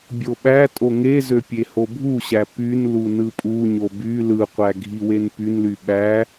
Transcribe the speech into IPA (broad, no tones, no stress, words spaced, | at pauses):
bʲoɓætʼo ŋezø pʲehobʱuɕæ pynlu nɯpʼuɲo by lɯqʷæ ɡʱiwenpynly ɓæ